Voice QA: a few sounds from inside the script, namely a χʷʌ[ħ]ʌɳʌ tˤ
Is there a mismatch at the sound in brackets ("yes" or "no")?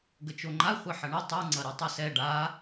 no